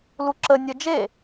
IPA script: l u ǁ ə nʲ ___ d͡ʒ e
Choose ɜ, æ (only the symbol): ɜ